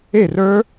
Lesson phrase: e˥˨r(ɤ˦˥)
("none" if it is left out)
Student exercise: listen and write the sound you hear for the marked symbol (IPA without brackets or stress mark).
ə˞˦˥